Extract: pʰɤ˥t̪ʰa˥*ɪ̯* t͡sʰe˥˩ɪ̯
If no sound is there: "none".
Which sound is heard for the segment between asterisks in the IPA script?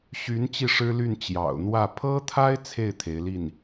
ɪ̯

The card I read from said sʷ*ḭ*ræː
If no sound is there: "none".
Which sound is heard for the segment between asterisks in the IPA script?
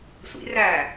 ḭ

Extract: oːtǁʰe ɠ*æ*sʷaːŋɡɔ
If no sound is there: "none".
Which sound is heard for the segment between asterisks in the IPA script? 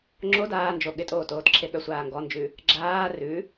œ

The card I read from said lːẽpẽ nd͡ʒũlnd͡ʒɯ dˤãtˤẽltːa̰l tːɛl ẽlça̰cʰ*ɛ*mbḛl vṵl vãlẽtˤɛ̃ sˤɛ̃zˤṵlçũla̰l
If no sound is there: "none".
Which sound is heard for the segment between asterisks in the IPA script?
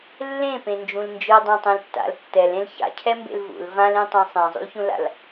ɛ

